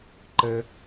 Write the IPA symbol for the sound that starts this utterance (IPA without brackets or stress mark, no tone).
ǃ